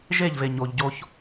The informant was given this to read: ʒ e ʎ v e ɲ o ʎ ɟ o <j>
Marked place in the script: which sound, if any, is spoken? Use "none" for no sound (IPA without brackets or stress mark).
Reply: ç